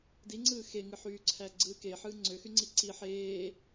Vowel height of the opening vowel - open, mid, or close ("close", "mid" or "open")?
close